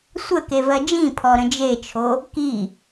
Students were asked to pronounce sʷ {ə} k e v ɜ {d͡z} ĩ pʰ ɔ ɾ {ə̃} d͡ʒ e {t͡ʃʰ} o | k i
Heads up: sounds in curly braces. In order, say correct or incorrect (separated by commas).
correct, incorrect, correct, correct